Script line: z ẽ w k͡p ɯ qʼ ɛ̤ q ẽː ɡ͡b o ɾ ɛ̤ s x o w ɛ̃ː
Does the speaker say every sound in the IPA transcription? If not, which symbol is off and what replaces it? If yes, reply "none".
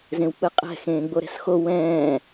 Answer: q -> x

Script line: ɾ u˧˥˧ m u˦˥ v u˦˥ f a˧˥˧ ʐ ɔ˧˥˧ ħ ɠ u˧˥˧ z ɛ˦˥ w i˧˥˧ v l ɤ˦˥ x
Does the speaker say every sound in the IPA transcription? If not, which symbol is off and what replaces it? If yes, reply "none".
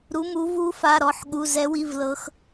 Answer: ʐ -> ɾ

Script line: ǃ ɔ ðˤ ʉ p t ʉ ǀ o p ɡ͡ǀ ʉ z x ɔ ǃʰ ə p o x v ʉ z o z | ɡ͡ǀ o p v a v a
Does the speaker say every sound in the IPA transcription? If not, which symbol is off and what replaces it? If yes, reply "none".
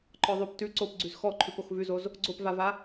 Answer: ə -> ʉ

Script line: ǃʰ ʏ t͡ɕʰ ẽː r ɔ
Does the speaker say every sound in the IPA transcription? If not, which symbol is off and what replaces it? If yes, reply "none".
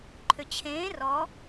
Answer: none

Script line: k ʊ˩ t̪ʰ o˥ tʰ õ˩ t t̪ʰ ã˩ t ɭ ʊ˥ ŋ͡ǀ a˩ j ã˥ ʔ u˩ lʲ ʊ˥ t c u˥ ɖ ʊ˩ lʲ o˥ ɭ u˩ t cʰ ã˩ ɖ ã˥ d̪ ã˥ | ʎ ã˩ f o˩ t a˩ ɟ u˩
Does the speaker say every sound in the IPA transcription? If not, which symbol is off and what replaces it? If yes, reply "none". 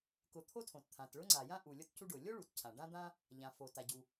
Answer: none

